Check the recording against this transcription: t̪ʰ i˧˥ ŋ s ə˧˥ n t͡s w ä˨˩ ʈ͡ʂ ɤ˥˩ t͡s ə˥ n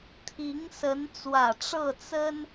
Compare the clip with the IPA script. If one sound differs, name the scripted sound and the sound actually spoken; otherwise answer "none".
none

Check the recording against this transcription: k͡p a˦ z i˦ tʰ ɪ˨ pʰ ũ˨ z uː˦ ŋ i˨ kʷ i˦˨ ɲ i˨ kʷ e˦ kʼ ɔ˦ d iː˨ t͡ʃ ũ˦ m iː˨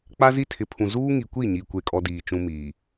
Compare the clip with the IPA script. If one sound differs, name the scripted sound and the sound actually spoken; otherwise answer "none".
none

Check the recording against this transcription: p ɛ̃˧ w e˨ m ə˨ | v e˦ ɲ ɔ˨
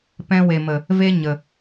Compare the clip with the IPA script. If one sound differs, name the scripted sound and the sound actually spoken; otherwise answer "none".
ɔ˨ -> ə˨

